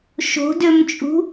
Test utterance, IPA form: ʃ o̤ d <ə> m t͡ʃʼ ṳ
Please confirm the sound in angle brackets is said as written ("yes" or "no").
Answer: no